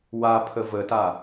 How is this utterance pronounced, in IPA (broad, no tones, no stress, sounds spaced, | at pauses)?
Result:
w a pʰ ə v ə t a